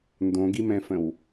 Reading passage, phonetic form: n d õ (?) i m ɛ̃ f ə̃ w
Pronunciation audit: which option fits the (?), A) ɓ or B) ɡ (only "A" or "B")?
B